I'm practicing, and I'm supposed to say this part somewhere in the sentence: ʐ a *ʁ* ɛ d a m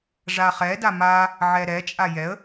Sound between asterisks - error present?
yes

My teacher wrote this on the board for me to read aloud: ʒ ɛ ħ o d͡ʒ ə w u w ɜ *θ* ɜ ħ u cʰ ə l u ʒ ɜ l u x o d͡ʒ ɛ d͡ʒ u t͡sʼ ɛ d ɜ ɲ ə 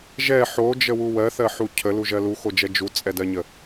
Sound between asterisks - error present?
no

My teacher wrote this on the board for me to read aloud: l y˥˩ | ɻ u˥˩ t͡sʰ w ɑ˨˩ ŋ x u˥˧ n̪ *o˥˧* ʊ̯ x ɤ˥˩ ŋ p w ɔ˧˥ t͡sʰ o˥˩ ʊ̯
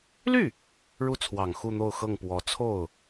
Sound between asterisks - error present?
no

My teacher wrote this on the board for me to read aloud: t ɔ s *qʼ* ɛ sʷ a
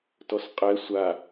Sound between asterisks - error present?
no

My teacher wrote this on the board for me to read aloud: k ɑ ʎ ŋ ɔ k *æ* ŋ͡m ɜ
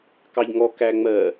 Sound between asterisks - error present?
no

